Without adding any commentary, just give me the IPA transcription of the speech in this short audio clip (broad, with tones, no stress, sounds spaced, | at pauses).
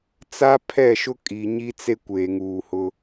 t͡s a˦ pʰ ɛ˦˨ ʃ ʊ˦ kʼ i˨ ɲ i˦ t͡s e˦ kʷ eː˨ ŋ uː˨ h ʊ˦